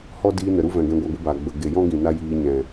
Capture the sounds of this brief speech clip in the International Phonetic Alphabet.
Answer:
h ɔ˦ d iː˧ n ə˨ ɾ u˦ v ɛ̃˨ ɡ ɛ̃˧ ɡʷ a˧ ɡʷ ɨ˧ b aː˨ ɡ͡b ə˨ ɡ e˨ j ɔ̃˦ ɡ ĩ˨ n a˦ j iː˧ ɲ ɛ̃˨

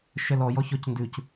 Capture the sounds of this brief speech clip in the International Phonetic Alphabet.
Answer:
ʃ ɛ l ɔ j ɔ ç ɔ c n d ʉ c

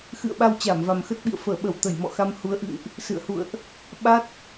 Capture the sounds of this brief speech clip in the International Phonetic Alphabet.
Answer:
x ɨ̰˧˨ ə̯ ɓ a˧ w t͡ɕ aː˧˩ m v a˨˩ m x ə˦˥ t̚ ɓ ḭ˧˨ ə̯ f əː˧˩ ɓ ə˧˩ w t̪ ə˧˩ j m ɔ̰˧˨ x a˧ m h u˨˦ ə̯ ʔ ɨ̰˧˨ ŋ ʔ | s ɨ̰˧˨ ə̯ h ṵ˧˨ ə̯ ʔ | ɓ a˦˥ t̚

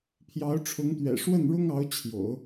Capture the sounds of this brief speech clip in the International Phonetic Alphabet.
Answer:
pʰ j ɑ˧˥ ʊ̯ ʈ͡ʂʰ ʊ˧˥ ŋ t̪ ɥ ɛ̰˨˩ ʂ w ə˥˩ n ɻ ʊ˥ ŋ ɑ˧˥ ʊ̯ t͡ɕʰ j o̰˨˩˦ ʊ̯

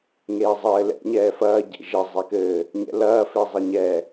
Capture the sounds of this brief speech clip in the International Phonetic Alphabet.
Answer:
ŋ eː zˤ ɘː l ɛ̰ ɲ ɛː f ɐː ɟ ḛ ʒ e zˤ e k ɘː | ɲ ɛ̰ l ɐː f e zˤ ɘ ɲ ɛ

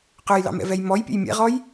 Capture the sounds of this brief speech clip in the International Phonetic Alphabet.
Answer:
q œ j l ɑ̰ m ɛ̰ v ɛ j m ɔ j pʲ ɛ̰ j mʲ ɛ̰ ʁ ɔ j

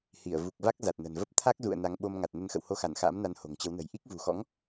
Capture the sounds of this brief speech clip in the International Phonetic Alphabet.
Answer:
h i˧˩ ə̯ v u˨˩ k̚ v a˦˥ k̚ z a˨˩ t̚ n ə̤˨˩ n v ə˦˥ p̚ t̪ʰ a˦˥ k̚ z ṵ˧˨ ə̯ n a˨˦ ŋ ɓ o˧ m ŋ a˨˩ t̚ n ə˨˦ n x ə̰˧˨ w h o˧ x a˧˩ n x a̰ː˧˥ m n a˨˦ n h o̤˨˩ ŋ t͡ɕ ə˨˦ w n ə̤˨˩ j ʔ i˦˥ k̚ v ṳ˨˩ x ɔ̰˧˥ ŋ

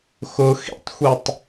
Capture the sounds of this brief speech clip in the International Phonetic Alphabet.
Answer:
x ʊ x ḭ tˤ xʷ i tˤ

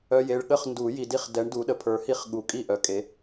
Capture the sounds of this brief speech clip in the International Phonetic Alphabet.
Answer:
œ˨ j e˨ ɭ ɠ ə˥˨ χ n d u˨˩˦ j i˨ d i˦ χ d ɛ˨˦ ɳ d u˨˦ ɗ ə˨ pʰ ə˞˨˦ h i˥˨ χ ɠ u˨˩˦ kʼ i˥˨ ʔ œ˨˦ kʼ e˨˦

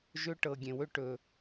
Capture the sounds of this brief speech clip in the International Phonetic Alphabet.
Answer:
ʒ ɵ˦ ʈ ɤ˨ ɡʲ ẽ˨ w ɵ˦ ʈ ɵ˨

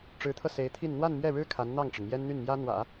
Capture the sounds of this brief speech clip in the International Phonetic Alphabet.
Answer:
ʈ͡ʂ ɻ̩˧˥ t̪ʰ ɤ˧ s e˧˥ ɪ̯ t̪ʰ i˥˧ n n̪ w a˥˧ n m ɥ ɛ˥˩ ɻ ɻ̩˥ kʰ a˧˥ n n̪ ɑ˥˩ ŋ ʈ͡ʂ ə˩ n m j ɛ˥ n n̪ y˥˩ n m j ä˥ n̪ w ä̰˨˩˦

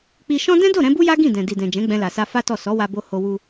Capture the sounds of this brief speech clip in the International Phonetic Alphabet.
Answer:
k͡p i˧ ʃ ɔ̃˦ d ɛ̃˦ d o˦˨ ɾ ɛ̃˨˦ b u˦ j a˦ ɡ ĩ˦˨ d ɛ̃˨ d i˨ d ɛ̃˨ d͡ʒ ɛ̃˨˦ ɡ͡b ɛ̃˧ l a˨ s a˧ f a˦ t ɔ˦˨ s ɔ˨˦ w a˧ b o˧ h o˧ w u˧

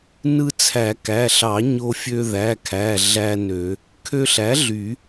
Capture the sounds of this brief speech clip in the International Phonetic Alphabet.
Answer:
n ɯ˧ t͡sʰ æ˨˩˦ k æ˩˧˩ ɬ ɑ˨˩˦ ɲ o˧ fʲ ø˧ ð æ˩˧˩ kʰ æ˩˧˩ ɮ æ˧ n ø˨˩˦ | kʰ ø˧ ɬ æ˩˥ ɮ y˨˩˦

